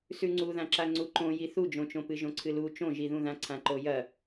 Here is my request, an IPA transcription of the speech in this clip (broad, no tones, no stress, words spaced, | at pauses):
sʉŋ͡ǀuðãǁa ŋ͡ǀuǃõji θud͡ʒõt͡ʃõ pɨʒõǀʰɨlu t͡ʃõʒiðũðã ǀʰãǃojɐ